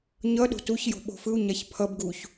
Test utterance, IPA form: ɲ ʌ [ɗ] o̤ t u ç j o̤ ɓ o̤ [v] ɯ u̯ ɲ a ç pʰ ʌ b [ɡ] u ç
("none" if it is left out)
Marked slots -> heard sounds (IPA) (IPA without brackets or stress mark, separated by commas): ɗ, f, ɡ